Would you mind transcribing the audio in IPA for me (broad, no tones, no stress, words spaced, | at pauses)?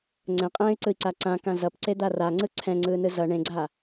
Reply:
ŋ͡ǀɛ̃qʼɛ̃ːy̯ǀɯi̯ǀa ǀãkã zʌpǀed̪a raŋ͡ǀɯ ǀʰɛ̃ŋ͡ǀɯːnɯ zʌ ɳẽɡ͡ǀa